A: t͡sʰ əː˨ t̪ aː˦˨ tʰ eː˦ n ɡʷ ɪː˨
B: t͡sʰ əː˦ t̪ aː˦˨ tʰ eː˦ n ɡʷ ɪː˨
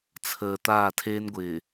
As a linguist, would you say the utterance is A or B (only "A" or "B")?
A